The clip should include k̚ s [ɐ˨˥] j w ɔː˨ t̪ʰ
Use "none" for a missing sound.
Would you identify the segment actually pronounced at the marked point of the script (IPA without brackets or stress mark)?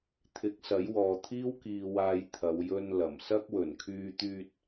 ɐ˨˥